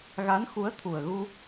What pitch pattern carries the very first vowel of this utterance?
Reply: rising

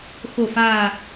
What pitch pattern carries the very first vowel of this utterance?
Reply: low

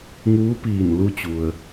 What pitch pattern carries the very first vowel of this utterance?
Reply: rising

